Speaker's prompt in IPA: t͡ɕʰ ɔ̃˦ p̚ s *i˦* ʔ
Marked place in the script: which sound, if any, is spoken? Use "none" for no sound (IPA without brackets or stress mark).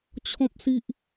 i˦